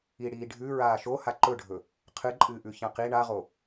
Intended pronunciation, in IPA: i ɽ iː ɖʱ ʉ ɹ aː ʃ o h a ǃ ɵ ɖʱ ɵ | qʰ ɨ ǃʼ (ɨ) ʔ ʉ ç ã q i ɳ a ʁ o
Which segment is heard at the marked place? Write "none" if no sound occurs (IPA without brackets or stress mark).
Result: ɨː